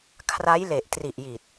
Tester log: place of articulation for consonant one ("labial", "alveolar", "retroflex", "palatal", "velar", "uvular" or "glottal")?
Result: velar